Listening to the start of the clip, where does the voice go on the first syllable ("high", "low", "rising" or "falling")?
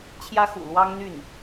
high